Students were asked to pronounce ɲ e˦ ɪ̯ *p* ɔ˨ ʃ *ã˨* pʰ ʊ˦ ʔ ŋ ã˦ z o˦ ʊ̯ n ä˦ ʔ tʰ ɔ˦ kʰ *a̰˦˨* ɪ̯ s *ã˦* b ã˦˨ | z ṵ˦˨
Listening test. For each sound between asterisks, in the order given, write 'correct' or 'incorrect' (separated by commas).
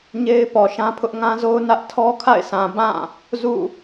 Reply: correct, incorrect, correct, incorrect